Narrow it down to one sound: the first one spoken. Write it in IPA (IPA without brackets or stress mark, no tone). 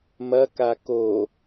m